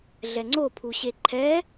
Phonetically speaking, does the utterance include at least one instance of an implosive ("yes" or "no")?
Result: no